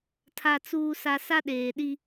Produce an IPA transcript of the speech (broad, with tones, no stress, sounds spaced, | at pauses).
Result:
tʰ a˨ t͡s uː˨ s a˨ s a˦ ɗ eː˨ ɗ i˦